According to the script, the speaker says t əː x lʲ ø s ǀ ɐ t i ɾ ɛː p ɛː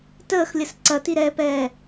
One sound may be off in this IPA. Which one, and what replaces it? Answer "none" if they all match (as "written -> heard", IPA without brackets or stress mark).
ø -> ə